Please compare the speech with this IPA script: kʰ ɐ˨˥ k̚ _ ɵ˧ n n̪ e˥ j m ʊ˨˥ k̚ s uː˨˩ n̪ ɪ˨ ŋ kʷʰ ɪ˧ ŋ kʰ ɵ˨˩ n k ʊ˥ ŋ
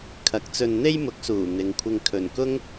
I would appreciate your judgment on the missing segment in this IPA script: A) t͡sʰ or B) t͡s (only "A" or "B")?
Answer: B